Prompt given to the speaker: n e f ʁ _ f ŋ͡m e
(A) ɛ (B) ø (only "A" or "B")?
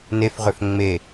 B